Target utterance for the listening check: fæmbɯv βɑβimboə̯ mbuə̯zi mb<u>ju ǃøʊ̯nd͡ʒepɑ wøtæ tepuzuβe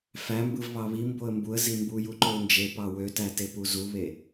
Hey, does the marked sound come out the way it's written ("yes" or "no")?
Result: yes